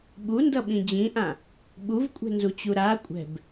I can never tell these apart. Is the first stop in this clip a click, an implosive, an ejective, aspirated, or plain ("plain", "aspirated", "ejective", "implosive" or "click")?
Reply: implosive